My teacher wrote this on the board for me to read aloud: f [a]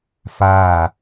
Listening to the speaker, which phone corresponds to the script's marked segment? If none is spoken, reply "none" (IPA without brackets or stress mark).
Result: a